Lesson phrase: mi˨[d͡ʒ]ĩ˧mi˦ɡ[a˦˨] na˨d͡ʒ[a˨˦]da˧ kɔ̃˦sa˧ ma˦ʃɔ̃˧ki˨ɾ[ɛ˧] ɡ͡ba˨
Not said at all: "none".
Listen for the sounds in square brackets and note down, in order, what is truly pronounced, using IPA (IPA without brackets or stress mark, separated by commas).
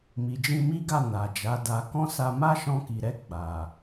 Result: d͡ʒ, a˦˨, a˨˦, ɛ˧